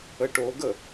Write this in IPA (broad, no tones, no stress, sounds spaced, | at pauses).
ə ʈ o ɡ ə